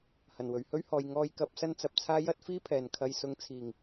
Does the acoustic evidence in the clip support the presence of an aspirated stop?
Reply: yes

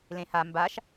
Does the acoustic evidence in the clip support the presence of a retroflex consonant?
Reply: no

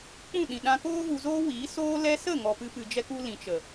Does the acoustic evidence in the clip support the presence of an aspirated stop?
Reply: no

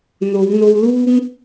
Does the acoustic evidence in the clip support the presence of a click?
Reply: no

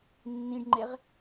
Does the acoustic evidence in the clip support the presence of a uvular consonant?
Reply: yes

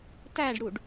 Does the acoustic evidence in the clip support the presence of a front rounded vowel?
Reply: no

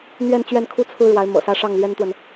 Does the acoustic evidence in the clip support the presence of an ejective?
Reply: no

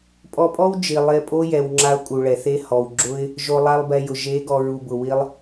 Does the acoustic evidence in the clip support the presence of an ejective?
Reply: yes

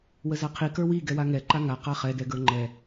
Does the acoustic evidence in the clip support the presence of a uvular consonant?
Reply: yes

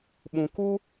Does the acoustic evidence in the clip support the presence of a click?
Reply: no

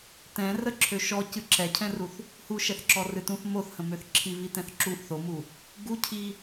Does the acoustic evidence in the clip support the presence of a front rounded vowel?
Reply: yes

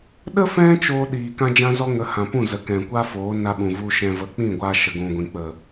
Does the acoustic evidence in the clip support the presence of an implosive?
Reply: yes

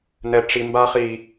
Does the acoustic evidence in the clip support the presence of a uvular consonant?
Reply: yes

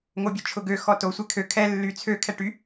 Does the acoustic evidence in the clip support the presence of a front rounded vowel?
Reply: yes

